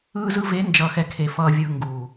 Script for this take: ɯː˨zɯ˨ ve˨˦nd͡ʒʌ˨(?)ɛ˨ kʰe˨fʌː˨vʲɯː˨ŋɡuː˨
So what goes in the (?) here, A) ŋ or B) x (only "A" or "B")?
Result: B